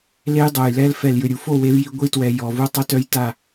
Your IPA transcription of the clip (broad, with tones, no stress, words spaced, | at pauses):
le˦jdˤo˨jlɛ˦l fɛ˨ljʏ˨ɾʲu˨fo˦˨ we˦vji˦ ɡʷi˦twɛ˨ jɔ˨vu˦ tˤʏ˦tœ˦j ta˦˨